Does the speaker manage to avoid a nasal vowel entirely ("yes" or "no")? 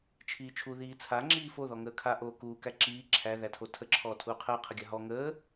yes